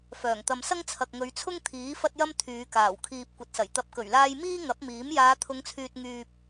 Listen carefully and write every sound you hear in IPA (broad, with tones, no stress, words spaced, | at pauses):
fœː˨˩ŋt̪ɐ˨msɐ˥ŋ t͡sʰɐ˨k̚ŋɵ˨˧ɥt͡sʰʊ˥ŋ t̪ʰiː˨˥ fɐ˥t̚jɐ˥m t̪ʰyː˨˧kaː˨˩w kʰiː˨p̚ kʷɐ˨˥t̚sɐ˨˩j t̪ɐ˨p̚kɵ˨˩ɥlaː˧j miː˥ŋɐ˨˥p̚miː˨˥m jaː˨˧t̪ʰʊ˨˧ŋt͡sʰyː˨t̚ ŋyː˧p̚